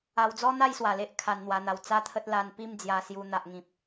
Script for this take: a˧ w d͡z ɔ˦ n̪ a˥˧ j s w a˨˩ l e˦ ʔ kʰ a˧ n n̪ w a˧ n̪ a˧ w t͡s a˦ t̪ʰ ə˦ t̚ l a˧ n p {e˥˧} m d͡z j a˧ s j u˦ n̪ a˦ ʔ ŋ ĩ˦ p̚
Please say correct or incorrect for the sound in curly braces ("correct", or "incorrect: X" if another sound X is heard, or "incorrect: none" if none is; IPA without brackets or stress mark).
incorrect: i˥˧